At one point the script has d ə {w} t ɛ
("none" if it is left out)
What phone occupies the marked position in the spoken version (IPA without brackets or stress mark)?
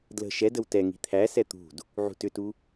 w